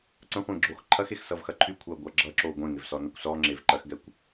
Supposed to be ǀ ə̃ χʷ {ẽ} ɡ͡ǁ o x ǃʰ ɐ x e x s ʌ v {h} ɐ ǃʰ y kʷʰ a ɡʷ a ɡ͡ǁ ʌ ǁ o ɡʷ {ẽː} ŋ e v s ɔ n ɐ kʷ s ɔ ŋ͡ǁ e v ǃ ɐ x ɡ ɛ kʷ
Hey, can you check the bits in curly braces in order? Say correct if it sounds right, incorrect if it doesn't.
correct, incorrect, incorrect

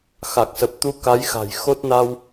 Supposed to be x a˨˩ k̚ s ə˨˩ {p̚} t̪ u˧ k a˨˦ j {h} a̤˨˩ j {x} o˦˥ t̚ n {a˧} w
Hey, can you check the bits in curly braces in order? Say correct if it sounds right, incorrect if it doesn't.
correct, incorrect, correct, correct

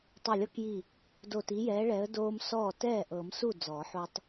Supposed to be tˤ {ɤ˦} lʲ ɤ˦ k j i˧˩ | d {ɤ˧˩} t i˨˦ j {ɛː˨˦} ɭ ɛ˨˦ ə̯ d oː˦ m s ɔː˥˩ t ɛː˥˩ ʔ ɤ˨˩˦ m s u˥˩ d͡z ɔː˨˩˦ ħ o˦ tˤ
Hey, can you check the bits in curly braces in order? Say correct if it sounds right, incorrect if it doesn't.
incorrect, incorrect, correct

